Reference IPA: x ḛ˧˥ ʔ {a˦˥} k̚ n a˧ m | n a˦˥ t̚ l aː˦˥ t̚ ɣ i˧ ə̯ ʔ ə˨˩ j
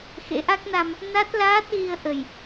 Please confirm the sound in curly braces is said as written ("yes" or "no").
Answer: yes